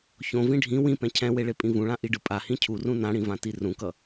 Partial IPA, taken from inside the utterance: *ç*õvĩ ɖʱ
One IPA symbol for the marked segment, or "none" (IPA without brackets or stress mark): ç